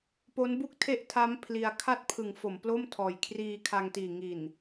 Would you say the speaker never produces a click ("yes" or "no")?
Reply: yes